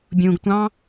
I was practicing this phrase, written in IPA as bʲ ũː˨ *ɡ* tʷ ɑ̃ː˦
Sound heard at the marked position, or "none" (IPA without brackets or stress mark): ɡ